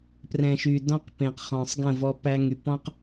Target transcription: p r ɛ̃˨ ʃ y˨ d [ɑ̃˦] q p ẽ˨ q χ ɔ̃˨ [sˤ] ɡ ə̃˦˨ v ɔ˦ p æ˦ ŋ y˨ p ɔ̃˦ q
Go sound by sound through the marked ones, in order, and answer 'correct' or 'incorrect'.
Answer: incorrect, correct

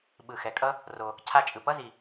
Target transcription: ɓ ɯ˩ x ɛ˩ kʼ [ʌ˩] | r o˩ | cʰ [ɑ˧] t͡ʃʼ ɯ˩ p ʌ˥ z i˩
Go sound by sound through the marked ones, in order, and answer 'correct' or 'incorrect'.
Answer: incorrect, incorrect

